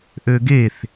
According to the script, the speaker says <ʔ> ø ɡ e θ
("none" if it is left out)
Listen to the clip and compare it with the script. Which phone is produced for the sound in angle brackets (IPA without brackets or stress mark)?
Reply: ʔ